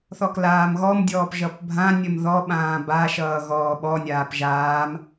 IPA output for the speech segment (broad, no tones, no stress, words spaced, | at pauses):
θɔklaːmɣɔmdʲɔːp ʒʌpbʱãnʲəm ðɔɓãː baʃʌː ɣɔːɓɔnʲaːp ʒaːm